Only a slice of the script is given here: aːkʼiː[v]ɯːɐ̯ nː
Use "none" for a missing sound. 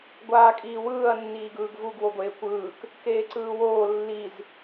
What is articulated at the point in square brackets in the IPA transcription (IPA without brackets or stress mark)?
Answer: w